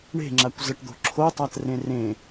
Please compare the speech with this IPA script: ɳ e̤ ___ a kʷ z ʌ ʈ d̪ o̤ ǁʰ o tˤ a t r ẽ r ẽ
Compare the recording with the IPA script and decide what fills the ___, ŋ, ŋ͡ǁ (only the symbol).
ŋ͡ǁ